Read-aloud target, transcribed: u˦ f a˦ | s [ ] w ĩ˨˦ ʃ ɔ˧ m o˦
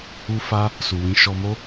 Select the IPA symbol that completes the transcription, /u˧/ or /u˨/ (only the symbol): u˨